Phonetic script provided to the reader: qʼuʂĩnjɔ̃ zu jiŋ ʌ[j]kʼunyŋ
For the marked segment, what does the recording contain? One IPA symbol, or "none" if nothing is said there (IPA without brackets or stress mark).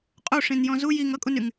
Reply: none